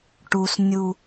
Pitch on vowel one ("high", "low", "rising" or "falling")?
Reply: low